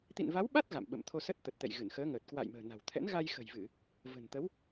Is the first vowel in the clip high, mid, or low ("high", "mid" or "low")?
high